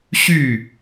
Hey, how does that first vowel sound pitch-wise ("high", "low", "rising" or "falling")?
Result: falling